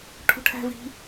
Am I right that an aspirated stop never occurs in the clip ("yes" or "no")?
no